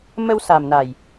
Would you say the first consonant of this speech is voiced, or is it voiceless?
voiced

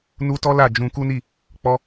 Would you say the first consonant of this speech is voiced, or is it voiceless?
voiced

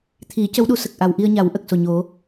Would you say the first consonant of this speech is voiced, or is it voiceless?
voiceless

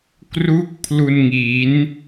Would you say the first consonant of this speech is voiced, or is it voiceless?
voiceless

